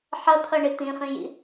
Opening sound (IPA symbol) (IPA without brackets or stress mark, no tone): ħ